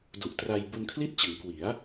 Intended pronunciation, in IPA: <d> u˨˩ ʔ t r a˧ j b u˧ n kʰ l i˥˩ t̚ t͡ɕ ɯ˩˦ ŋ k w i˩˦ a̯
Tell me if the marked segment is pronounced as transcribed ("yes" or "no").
yes